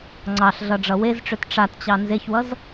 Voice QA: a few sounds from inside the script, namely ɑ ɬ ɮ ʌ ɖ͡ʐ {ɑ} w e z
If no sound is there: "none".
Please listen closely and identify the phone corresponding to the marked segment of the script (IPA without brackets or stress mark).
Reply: ʌ